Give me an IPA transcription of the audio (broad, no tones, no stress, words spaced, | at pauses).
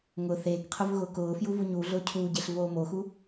ŋʊ θeːkqʰʊv ɣʊːkʊːfju vuɲuːɮʊː cʰuːɟeɬ voːmoxu